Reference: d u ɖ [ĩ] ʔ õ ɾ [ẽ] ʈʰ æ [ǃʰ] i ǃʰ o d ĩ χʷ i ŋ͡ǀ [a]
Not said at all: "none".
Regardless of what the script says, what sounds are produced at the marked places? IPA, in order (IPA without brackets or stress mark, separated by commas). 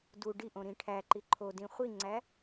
i, ĩ, ǃ, æ